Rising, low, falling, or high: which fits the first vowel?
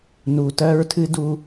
low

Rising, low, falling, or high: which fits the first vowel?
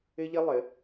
high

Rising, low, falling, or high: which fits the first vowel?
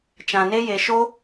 low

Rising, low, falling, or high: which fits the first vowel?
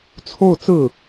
falling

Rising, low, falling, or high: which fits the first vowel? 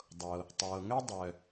low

